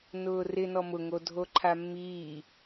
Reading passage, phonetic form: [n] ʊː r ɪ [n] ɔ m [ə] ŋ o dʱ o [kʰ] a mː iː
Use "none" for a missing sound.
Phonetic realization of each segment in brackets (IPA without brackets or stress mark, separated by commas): n, n, ʊ, ǃʰ